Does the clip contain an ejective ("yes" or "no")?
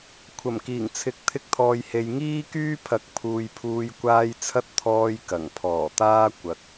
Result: no